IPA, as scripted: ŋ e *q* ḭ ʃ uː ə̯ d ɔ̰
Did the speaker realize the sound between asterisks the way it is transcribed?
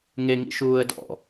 no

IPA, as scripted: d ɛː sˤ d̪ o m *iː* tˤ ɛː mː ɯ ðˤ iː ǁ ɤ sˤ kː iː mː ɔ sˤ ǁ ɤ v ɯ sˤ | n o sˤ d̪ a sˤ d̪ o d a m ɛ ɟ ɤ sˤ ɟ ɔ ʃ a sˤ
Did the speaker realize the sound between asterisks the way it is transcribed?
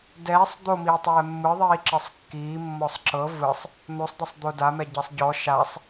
yes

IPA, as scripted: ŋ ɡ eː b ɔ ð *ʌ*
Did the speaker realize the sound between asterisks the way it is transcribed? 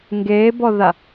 no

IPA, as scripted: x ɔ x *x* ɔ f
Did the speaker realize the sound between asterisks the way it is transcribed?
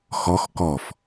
no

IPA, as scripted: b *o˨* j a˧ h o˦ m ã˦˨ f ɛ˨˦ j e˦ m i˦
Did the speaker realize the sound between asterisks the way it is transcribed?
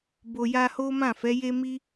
yes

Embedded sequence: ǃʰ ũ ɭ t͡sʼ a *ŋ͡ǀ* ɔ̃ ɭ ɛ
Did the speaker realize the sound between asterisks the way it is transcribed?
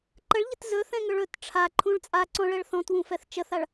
no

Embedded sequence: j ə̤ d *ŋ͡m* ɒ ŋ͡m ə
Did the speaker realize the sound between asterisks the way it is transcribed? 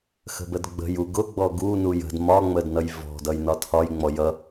no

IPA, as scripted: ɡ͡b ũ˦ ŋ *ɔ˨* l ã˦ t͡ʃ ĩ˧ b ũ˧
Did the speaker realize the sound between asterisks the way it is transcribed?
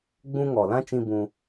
yes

